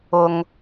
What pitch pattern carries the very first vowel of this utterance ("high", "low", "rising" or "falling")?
low